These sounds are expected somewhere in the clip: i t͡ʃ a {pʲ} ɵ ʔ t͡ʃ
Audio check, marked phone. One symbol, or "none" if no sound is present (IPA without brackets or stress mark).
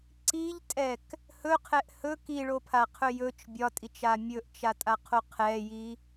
mʲ